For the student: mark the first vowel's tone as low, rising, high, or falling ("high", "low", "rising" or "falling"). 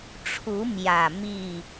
rising